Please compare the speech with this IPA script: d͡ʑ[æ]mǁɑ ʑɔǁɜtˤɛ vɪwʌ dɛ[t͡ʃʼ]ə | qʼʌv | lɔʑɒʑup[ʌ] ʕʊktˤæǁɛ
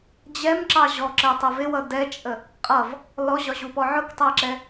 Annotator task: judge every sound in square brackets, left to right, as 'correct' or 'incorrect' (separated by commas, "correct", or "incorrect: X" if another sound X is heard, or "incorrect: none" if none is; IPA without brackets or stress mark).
incorrect: ɛ, correct, incorrect: ɔ